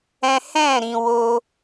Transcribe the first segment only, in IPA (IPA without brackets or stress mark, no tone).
ɛ̃